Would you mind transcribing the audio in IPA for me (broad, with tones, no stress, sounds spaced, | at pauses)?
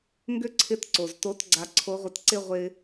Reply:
ŋ ɡ ʏ˥ ǀʰ ɪ˧˥ t ǀ o˩ z t o˧˥ t ɡ͡ǀ a˧ ǀʰ o˧˥ ʁʷ ɪ˧˥ t ǀ ɪ˥ ʁʷ ɪ˥